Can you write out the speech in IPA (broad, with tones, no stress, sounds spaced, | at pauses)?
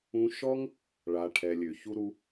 ũ˧ ʃ ɔ˦ ŋ | ɭ a˨ ʈʰ ɛ˨ lʲ ø˨ ç u˧ ɾ u˧